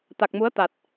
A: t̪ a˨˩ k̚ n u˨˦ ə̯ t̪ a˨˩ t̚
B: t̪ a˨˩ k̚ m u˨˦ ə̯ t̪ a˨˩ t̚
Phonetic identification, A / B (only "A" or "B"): B